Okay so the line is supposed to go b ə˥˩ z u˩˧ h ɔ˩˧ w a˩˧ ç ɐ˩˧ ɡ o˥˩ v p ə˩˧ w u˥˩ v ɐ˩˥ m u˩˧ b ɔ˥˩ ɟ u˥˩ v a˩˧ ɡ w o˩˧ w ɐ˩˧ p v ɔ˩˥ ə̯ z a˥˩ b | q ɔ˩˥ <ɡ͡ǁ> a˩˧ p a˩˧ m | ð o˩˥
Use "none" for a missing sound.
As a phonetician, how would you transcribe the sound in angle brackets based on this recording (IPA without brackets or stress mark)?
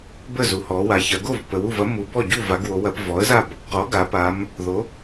ɡ